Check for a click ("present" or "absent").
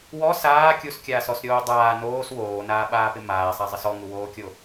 absent